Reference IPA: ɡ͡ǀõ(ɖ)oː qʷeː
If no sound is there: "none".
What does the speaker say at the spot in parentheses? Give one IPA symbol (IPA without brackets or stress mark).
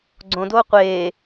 d